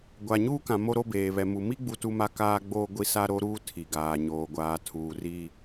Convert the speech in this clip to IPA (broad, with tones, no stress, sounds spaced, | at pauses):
ɡʷ a˨ ɲ uː˦ k ã˨ m o˦ ɾ o˦ b eː˨ β ɛ˨ m u˨ m i˦ ɡ͡b u˦ t u˦ m a˦ k aː˦ ɡ͡b oː˦ ɡʷ i˦ s a˦ ɾ o˦ ɾ uː˦ tʰ i˨ ɡ aː˨ ɲ oː˨ ɡʷ aː˨ tʰ uː˨ r i˦